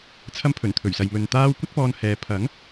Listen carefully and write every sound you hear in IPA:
t͡sʰ ɐ˧ m pʰ ɵ˨˩ n t̪ʰ ɵ˨˩ ɥ s ɐ˨ j m ɵ˧ n t̪ aː˥ w kʷ ɐ˥ t̚ p ɔː˧ n h ɛː˨˧ pʰ ɐ˨˥ ŋ

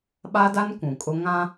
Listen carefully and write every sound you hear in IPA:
ɓ a˦ d a˦ n kʷ ũ˨ kʼ ʊ˦ ŋ ã˦

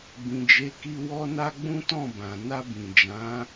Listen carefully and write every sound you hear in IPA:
b ĩ˨ d͡ʒ e˨˦ k i˧ w ɔ˧ n a˧ ɡ͡b ũ˦ t ɔ̃˦˨ b ã˨ n a˧ b ĩ˨ d͡ʒ ã˨˦

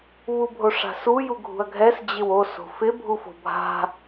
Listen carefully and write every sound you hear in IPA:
β u bʱ o ʂ a̤ s u j u ɡʱ ṳ ɐ̯ ɡʱ ɛ s d͡ʑ ɪ w o s o̤ f ɪ bʱ u f o̤ bʱ a̤

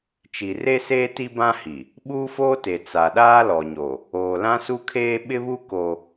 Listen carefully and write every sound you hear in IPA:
t͡ʃ i˨ r e˦ s eː˦ t i˦ b ã˦ h i˨ | ɓ uː˦ f oː˦ t e˨ t͡s a˨ ɗ aː˦ l ɔ˨ ɲ o˨ | oː˨ l ã˦ s u˦ kʰ eː˦ ɓ ɪ˦ β u˦ k o˦

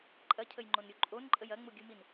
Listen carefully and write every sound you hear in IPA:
ǃʼ ɐ cʰ ə j ŋ͡ǃ o n ɾʲ u ǃʼ o n ǃʼ ə j ɐ ŋ͡m u ɡʲ u m i n

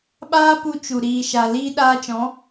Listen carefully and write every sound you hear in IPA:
ɓ aː˦ p u˧ t͡ʃ u˨ ɾ iː˨ ʃ a˨ l iː˧ ɗ aː˧ t͡ʃ ɔ̃˨˦

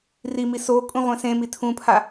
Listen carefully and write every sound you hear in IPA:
r i m i s o kʼ ũ ʁʷ ẽ s ẽ m i tʰ ũ pʰ a

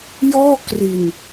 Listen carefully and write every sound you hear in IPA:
j ɔː˥˩ k r i˧ n

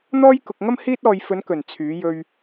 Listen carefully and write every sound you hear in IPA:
n̪ ɔː˥ j k ʊ˧ k̚ ŋ ɐ˥ m h iː˥ t̚ ɔː˧ j f ɵ˨˧ n k ɵ˨˩ n t͡sʰ yː˨˧ j ɵ˧ ɥ

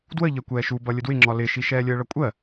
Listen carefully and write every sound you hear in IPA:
d w ə ʎ ɜ kʷ ɛː ʃ u b ʌ lʲ ə d w ɪ ŋ͡ǁ ɒ l ɪ ʃ i ʃ ɛː lʲ əː ɭ ʌ kʷʼ ɜ

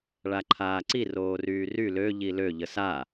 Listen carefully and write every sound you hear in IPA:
ɭ a ǃʰ aː ǀ i r oː r yː r y l ø ʎ i l ø ʎ ə s a

